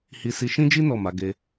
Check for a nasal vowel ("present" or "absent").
present